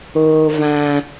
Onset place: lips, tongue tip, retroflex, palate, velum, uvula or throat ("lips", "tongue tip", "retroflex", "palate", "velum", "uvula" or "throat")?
lips